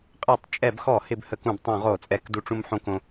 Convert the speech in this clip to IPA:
qʼɛ˧˩˧tˤt͡ʃʼɛ˧˩˧bxɔ˧˩˧ hɪ˧bhə˧˩˧k ũ˧˩˧btˤũ˧˩˧ʁo˧˩˧t͡sʼɛ˧˩˧k du˧ʈ͡ʂũ˧mħõ˧kõ˧

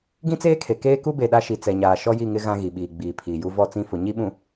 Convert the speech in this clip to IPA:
ɡĩ˦t͡seː˦kʰe˨ keː˦ku˦be˨ ɗa˦ʃi˨t͡sɛ˨ɲaː˨ ʃɔ˦ji˦˨ŋɪ˦ ɣã˦ ɣi˨ɓiː˨ ɡ͡biː˨ pʰiː˨ju˦ vɔ˦˨t͡sĩ˦˨fʊ˨ ɲi˦ ɓũ˨

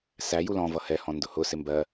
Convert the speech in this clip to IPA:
sæ julɔ̃ vʌhɛhɔ̃ ndʊhʊ sɪmbɜ

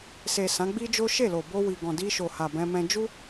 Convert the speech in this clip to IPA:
se˨ sã˨˦ɡ͡bi˦d͡ʒo˦ ʃe˦˨lo˨bo˧ wi˨ɡɔ̃˨ di˧ʃo˨ ha˨bɛ̃˧mɛ̃˧ d͡ʒu˦

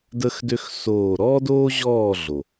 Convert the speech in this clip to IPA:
də˦xdø˦x soː˦˨ ɾɔː˦doː˦ʑɔː˦˨ ɮo˨

